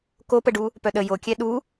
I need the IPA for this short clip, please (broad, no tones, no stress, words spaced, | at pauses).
kopəɖu | pœɗə jokʲɛ ɗu